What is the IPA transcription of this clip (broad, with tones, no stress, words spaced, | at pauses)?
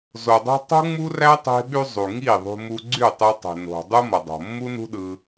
zo˨dˤo̤˦ tˤṳ˦ŋ͡mu˦ræ˦ tˤe̤˦ɓy˦ zˤu˨ ŋi˦˨ðˤṳ˧mu˧ ɡ͡ǀy˦˨tˤe˧tˤe̤˨no̤˨ dˤu˦mʌ˨dˤo̤˨ mːu˦nṳ˦ɗɯ˧